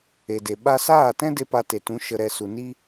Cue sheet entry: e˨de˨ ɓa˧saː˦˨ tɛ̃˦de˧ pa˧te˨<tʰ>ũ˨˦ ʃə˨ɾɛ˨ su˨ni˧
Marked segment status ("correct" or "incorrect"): incorrect